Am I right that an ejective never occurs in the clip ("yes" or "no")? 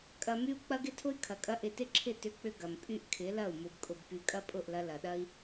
no